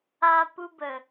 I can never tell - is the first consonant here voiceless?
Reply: yes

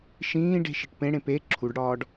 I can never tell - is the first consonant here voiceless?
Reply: yes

